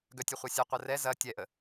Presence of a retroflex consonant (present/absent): absent